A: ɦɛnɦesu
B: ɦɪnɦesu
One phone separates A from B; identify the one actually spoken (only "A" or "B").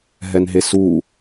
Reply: A